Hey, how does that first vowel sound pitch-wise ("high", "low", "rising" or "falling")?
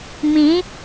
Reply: rising